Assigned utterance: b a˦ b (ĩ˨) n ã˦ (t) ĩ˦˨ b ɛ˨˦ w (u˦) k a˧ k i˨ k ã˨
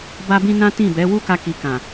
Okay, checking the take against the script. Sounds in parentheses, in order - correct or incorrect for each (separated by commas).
incorrect, correct, correct